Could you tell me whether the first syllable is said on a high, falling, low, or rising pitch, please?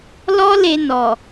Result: high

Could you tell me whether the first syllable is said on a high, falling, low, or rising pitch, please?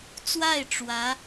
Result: falling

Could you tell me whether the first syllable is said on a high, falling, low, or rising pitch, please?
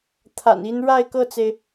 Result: low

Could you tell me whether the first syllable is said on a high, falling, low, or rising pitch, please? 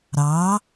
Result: rising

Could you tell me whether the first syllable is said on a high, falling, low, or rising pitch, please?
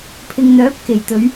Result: low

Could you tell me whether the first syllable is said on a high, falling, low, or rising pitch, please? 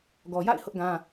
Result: low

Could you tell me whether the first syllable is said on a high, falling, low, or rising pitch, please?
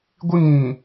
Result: high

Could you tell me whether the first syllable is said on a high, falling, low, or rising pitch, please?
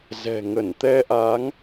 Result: low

